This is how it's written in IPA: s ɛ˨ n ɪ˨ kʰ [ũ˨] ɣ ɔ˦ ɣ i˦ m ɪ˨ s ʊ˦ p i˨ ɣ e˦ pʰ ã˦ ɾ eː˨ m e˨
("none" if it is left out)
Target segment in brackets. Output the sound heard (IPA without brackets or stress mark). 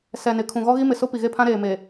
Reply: ũ˨